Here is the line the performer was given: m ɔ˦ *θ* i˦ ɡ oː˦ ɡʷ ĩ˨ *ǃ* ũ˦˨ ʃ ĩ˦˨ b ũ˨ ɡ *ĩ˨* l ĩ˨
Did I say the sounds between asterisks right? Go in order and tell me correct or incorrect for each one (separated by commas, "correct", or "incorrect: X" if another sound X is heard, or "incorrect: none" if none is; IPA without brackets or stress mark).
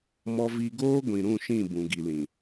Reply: incorrect: v, incorrect: ɾ, incorrect: i˨